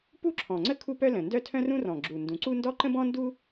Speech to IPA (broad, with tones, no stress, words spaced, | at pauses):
pu˥ǁʰɔ̃˨˩ŋ͡ǀə˥ kʰu˥pœ˥lə̃˨˩ ndœ˥tʰœ̃˥rũ˥ rɔ̃˨˩ɡ͡ǁu˨˩ ndũ˨˩ǀu˥ ndɔ˥ ǃə̃˥bɔ̃˥ndu˥